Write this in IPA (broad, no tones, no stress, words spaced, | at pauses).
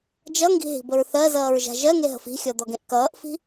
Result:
d͡ʒʌŋɡi̤ɦi̤bəɹ θɜzʌːɹʒa̤ ʒɜŋeɦə̤f i̤xʲɔd̪ɔɡẽʔ kʌːʔfi̤